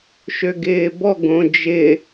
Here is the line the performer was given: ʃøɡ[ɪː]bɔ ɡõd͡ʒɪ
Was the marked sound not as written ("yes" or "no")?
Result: no